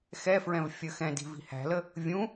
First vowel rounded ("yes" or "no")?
no